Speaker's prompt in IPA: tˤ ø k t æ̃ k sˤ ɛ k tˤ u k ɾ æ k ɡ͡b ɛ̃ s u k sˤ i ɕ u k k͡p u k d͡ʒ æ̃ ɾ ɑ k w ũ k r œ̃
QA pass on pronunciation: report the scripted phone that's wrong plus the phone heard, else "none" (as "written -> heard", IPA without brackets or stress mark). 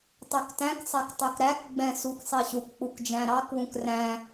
œ̃ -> æ̃